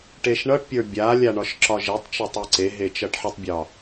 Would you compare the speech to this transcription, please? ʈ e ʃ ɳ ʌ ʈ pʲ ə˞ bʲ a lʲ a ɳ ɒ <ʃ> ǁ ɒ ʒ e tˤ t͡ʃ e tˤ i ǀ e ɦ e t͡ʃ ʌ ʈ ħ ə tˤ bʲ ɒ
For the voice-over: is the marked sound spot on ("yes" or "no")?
yes